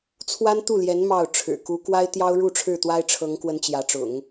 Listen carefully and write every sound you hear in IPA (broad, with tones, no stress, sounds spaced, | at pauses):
t͡sʰ w a˥ n t̪ u˥˩ l j ɛ˧˥ n m ɑ˥˩ ʊ̯ ʈ͡ʂʰ ɻ̩˨˩ k u˧˥ k w a˥ ɪ̯ t̪ j ɑ˥ ʊ̯ ɻ u˥˧ ʈ͡ʂʰ ɻ̩˥˩ t̪ w a˥ ɪ̯ ʈ͡ʂʰ ɤ˧˥ ŋ k w ə˧˥ n t͡ɕ j ä˧˥ ʈ͡ʂ ʊ̰˨˩˦ ŋ